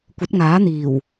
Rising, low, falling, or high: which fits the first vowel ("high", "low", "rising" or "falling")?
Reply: rising